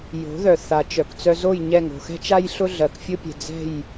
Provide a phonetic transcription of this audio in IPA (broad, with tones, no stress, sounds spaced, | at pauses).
j o̤˩˥ ð œ˩ θ a˩ t͡ʃ œ˩ k t͡s œ˧ z o˥˩ j ɲ ɛ˥˩ ŋ o̤˩ x ɛ̤˥ t͡ʃ a˥ j ɬ ʊ˥ ɮ ɜ˩ k fʲ ʊ˥ pʲ ɛ̤˩ d͡z ɛ̤˥˩ j